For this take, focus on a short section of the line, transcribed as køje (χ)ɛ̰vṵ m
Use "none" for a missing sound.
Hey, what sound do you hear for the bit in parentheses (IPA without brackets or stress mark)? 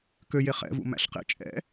χ